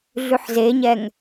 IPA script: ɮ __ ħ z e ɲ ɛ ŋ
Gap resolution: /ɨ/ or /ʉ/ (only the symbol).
ʉ